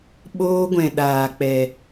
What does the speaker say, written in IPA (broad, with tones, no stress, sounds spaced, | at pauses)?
ɓ oː˦ ɡʷ ɛ̃˧ ɗ aː˧ k͡p ɛ˧